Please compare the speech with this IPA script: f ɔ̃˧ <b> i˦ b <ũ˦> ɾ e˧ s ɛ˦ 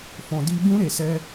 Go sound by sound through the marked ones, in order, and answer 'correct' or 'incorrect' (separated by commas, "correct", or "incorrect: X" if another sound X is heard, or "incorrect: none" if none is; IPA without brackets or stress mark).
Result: incorrect: d, correct